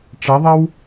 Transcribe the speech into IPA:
ʈ͡ʂʌðˤʌw

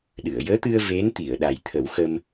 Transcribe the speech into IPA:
ɗɨ˨˩˨ə̯jəː˧˥t̪ɨ˧ə̯ ve˧˥nt̪i˨˩˨ə̯ ɗa˨˩jt̪ʰə˨˩˦w xə˧m

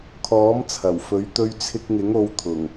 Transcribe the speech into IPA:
kʰɔː˨˥mt͡sʰɐ˨˩wfɵ˨˥ɥ t̪ɵ˧ɥt͡sʰɪ˧k̚ŋɪ˨˥ŋ o˨˧wt̪ʰʊ˨˩ŋ

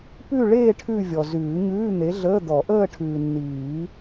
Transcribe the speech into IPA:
pʉ˥˧ɭeː˥˧ ʈʰʉ˥˧vʲɔ˨ zʉː˨˩˦ɲʉː˧˥˧n̪e˨˥ɮəː˧˥˧ d̪ɔ˨˩˦ʔəː˥˧ʈʰʉː˨nːiː˨˩˦

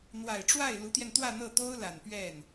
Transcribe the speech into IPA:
n̪wa˨˩ɪ̯ʈ͡ʂwa˥˩ɪ̯ lu˧˥t̪jɛ˧nt̪wä˥˧ n̪ɤ˥˩t̪o˥ʊ̯la˨˩n pɥɛ˥˩n

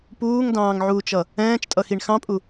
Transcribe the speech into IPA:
puːŋdɑ̃ːŋʕuːt͡ʃʌ | ɛ̃ːt͡ʃtʼʌxiɳ xɑ̃pʼu

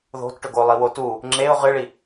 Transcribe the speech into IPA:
ðo̤tʈɵɡolˠi wotu | ŋ͡ǁeʊ̯ ʁɨɭi

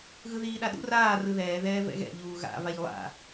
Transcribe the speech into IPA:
ɣɯðiːɗaɗṵ raː rɯðɛːðɛː vɛ̰ɣɛ̰ ʎuːɣa̰vaʎ lˠa̰

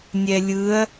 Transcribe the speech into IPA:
nʲɛlʲɯɐ̯

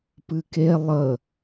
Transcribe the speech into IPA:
pɨke lˠə

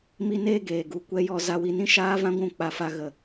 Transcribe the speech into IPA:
mi˦neː˦ɡeː˨ ɡu˨ kʷɛ˦jɔ˦ za˧wi˧nĩ˦ ʃaː˦vã˦ɡʷũ˦˨ k͡pa˧fa˧ ɣə˨

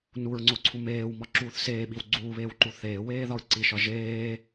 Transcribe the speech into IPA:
nuɹŋ͡ǀoǀʰu meːwmɒǁuːθ seːɓiw ɡ͡ǀuːβeːwǃu θeːweːðɒɹ ǀiʃɒ ʒeː

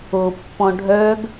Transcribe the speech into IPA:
opːɔ̃ ɖʱœɡ

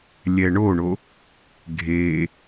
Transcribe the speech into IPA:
lʲɛɳoɳo | ɡʱe

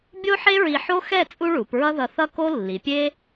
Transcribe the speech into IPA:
bʲo˥ħe˥ɹi˧ ħo˥xɛ˥˧ t͡sʼu˥ɭu˩˧pɹʌ˥ ðʌ˧θʌ˥ ko˥ lːi˩˧pʲe˥

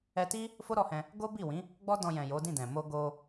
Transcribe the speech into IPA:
ɛ˧ti˦ | fo˦ ɾɔ˧hɛ̃˧ | ɡo˦bi˦˨wĩ˨˦ | ɡ͡bɔ˦dɔ̃˧jɛ̃˨ jo˨˦dĩ˦˨dɛ̃˨ mo˧ɡo˧

